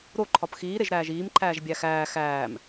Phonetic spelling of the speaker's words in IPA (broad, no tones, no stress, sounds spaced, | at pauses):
ɾ o ǃʰ ɒ p x iː ɾ e ʒ ɾ æː ʒ iː m ǃʰ æː ʒ bʲ æ x æː x æː m